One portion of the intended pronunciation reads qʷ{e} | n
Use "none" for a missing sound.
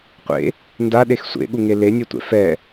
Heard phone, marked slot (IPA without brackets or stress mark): ḛ